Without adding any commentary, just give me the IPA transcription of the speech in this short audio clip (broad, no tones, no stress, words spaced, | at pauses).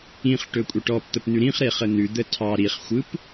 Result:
ĩχʈɵkʷʼə ʈɔpt̪əpn̪ʉ ɾĩχɾeχə n̪ʉd̪ə tʰɑ ɾiχxʷɯp